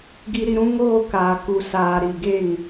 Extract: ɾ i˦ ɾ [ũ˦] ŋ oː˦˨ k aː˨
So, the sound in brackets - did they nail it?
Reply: yes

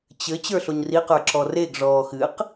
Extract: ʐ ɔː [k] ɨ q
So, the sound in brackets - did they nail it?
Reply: no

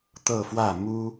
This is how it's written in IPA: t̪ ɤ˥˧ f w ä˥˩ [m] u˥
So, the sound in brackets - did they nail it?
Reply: yes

